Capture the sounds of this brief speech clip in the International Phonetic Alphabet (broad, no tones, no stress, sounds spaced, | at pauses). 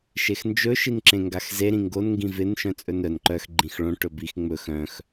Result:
ʃ e x n d͡ʒ ɵ ʃ i n ǁ ẽ ŋ ɡ a x z e ɾ ĩ ŋ ɡ o n ŋ ɡ ĩ v ɪ n ʃ œ̃ t͡sʼ ɵ n œ n ǃ œ x ɡ͡ǃ ĩ x ɭ õ ʈ ɵ b i x ŋ͡m ɵ x œ̃ x